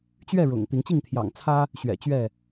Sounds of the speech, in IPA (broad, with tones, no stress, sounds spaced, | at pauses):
t͡ɕ ɥ ɛ˥˨ ɻ ʊ̰˨˩ ŋ t̪ i˨˦ ŋ t͡ɕ i˥˨ ŋ t̪ʰ j ɑ̰˨˩ ŋ t͡sʰ ä˦ | ɕ ɥ ɛ̰˨˩ t͡ɕ ɥ ɛ˥˨